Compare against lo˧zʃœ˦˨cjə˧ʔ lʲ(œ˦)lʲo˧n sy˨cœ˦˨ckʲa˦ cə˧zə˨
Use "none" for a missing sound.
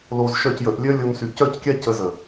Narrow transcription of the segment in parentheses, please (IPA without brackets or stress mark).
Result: œ˦